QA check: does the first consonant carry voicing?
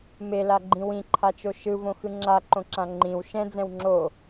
yes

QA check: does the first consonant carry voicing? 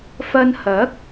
no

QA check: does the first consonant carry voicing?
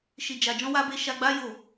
no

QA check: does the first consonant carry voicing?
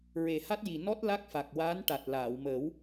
yes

